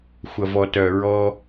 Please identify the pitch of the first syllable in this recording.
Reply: low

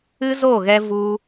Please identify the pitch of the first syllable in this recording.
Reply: high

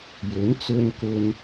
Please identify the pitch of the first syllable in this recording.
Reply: rising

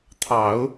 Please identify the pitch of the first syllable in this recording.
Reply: low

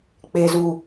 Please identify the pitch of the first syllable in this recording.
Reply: low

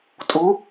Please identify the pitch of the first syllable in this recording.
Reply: rising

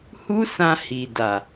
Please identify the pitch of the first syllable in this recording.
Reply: high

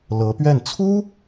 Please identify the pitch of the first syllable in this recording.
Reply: rising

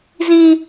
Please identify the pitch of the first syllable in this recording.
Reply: high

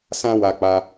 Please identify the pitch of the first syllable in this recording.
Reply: high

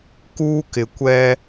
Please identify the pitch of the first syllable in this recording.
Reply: high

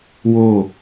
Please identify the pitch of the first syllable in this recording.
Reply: falling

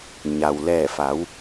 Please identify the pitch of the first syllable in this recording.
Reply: low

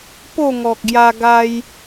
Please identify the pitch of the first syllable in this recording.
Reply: falling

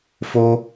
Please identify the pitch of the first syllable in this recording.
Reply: high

